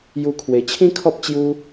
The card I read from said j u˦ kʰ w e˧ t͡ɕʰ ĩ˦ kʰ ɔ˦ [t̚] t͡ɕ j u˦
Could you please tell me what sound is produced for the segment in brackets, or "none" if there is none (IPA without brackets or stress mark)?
p̚